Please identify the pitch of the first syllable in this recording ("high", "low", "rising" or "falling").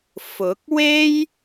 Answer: rising